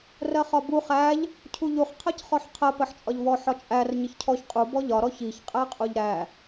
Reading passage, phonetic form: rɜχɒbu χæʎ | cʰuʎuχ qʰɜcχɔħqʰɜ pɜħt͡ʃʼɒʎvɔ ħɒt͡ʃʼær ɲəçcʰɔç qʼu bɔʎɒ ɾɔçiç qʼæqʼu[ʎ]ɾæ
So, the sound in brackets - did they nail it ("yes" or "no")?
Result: yes